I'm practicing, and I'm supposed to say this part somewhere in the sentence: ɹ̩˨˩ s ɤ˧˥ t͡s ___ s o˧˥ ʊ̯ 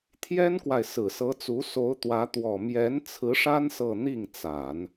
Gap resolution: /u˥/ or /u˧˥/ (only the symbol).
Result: u˧˥